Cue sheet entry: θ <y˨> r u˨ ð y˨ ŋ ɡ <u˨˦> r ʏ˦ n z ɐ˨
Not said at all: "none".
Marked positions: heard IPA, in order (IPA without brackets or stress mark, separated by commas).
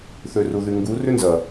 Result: ø˨, u˨˦